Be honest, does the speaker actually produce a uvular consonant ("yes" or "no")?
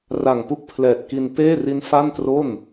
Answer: no